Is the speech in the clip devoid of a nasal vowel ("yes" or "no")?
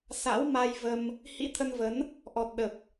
yes